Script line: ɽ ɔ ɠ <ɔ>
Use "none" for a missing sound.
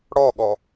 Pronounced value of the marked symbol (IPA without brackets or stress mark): ɔ